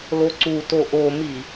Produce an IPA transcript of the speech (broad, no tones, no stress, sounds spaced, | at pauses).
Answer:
l o ǀ u t o ʔ o m i